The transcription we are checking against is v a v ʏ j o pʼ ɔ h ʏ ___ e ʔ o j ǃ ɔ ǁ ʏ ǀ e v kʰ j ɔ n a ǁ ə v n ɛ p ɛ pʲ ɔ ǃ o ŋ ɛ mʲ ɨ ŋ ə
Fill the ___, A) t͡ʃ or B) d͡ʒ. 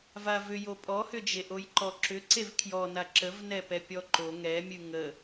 B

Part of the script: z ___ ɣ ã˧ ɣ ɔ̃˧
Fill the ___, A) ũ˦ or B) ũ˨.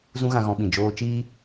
A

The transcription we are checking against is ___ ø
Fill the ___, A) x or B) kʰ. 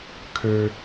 B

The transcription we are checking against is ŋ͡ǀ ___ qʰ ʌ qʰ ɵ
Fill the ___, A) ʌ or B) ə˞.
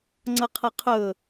A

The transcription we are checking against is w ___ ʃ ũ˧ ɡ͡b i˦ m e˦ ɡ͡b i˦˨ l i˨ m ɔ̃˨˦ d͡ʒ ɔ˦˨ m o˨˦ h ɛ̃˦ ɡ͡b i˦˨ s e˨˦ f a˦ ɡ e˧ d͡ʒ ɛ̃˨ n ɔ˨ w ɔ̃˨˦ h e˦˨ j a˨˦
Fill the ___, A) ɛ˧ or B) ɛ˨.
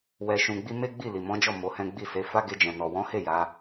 A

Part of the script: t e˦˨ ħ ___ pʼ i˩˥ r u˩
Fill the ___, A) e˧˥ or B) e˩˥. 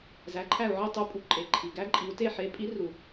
B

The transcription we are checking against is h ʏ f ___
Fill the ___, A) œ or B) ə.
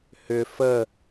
B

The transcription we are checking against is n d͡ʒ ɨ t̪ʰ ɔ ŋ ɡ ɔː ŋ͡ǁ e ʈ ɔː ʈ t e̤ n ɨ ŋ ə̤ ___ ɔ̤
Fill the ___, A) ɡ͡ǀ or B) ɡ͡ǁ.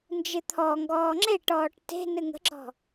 B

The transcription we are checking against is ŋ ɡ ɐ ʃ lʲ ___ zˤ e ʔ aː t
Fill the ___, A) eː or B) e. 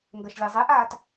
B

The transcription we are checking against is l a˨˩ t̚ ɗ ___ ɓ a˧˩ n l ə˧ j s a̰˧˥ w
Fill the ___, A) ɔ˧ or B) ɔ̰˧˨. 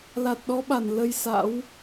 A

